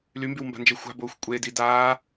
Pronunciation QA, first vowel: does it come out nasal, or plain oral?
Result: oral